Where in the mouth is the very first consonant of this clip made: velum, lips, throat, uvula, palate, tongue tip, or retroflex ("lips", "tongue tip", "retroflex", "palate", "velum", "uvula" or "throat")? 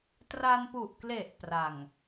tongue tip